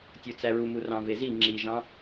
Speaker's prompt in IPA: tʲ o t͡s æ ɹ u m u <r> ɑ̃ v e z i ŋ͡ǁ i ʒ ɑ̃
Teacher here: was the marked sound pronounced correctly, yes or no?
yes